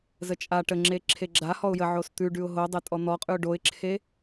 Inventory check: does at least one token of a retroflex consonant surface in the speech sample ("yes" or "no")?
yes